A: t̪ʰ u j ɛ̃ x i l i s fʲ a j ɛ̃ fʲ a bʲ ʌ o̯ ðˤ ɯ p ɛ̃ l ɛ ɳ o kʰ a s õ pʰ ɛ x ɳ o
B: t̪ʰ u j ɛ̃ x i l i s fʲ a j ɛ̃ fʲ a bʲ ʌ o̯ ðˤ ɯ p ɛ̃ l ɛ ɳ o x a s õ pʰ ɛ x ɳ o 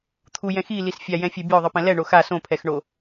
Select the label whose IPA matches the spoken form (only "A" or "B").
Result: B